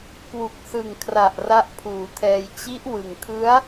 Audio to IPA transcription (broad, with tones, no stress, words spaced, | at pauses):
kwu˨˩k̚sɯ˨˩ŋkʰra˨˩ʔ ra˦˥ʔpʰuː˩˦tʰɛː˧j t͡ɕi˦˥ʔwɯ˨˩ŋkʰɯ˦˥a̯